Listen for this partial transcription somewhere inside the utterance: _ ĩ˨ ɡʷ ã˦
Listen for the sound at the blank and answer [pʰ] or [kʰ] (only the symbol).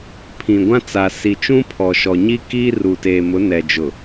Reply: pʰ